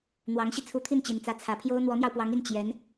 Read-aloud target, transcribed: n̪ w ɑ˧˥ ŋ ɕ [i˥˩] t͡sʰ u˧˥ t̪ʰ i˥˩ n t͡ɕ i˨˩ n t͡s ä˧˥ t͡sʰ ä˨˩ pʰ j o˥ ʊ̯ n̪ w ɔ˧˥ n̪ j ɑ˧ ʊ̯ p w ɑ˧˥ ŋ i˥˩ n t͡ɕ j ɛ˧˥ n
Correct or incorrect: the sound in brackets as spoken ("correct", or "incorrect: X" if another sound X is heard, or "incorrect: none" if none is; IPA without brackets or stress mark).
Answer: incorrect: i˧